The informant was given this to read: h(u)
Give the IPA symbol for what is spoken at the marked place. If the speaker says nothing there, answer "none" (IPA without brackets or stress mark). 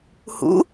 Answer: ṵ